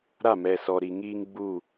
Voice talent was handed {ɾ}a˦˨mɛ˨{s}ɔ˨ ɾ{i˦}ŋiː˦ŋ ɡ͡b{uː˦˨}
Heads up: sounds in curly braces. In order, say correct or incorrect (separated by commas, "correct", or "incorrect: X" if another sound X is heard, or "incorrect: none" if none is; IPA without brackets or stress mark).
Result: correct, correct, incorrect: i˨, correct